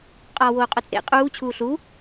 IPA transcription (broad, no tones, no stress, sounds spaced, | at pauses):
qʼ ɒː w oː qʼ o t͡sʼ ḛ qʼ uː t͡ɕʰ uː ɬ u